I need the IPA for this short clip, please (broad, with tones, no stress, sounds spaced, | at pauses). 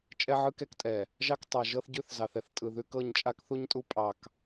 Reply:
t͡ʃʼ ɛ˦ ʕ ɯ˦ k ɛ˦ k tʼ ɛ˨ | ʒ ɑ˦ k tˤ a˨ ʒ ɤ˦ θ ɟ ʉ˦ θ z ɑ˨ θ ɛ˨ θ tʼ ɯ˨ ð ʉ˦ k ɤ˦˨ ɲ t͡ʃʼ a˦ k θ u˦ ɲ tʼ u˦ pʼ ɑ˨ k